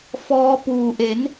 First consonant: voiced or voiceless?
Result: voiceless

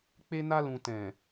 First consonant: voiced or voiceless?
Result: voiceless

